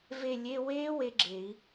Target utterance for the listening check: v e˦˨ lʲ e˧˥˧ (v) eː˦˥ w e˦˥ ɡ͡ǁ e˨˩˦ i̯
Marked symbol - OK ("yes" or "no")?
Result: no